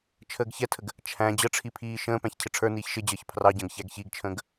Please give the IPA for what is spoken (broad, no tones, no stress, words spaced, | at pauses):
t͡ʃʰəːɡçɛtʰəɡ | t͡ʃʰæ̃ d͡ʑəʈ͡ʂʰi pʰiːʃə̃ːpæ̃ç cʰɪʈ͡ʂʰə˞niːç ʃɪd͡ʑəːç pʰrɑɟə̃ːɡ çæɡçiɡt͡ʃʰə̃ːɡ